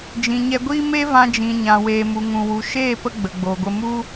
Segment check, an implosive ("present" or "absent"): absent